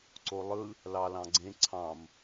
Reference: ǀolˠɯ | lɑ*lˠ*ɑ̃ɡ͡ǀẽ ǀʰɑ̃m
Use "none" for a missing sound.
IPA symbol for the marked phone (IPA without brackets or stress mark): l